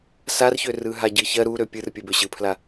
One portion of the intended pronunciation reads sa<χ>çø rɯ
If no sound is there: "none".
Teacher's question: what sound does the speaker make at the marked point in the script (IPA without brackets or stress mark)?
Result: r